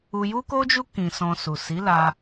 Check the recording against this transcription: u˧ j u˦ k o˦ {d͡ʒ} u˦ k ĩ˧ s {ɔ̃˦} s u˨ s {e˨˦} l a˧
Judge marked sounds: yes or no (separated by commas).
yes, no, no